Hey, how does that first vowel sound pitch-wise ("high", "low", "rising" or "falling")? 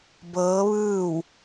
rising